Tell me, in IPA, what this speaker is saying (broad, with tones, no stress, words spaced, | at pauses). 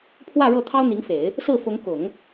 pʰwä˥˧ ɻɤ˥˩t̪ʰɑ˥ʊ̯n̪i˧˥ŋfe˨˩˦ɪ̯ | sɹ̩˥˩fʊ˧˥ŋ kʊ˨˩˦ŋ